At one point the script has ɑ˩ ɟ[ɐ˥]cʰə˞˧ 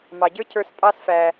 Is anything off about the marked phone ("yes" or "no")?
yes